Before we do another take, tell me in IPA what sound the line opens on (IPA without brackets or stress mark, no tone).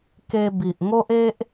k